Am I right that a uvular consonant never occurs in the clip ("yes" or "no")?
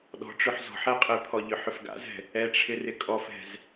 no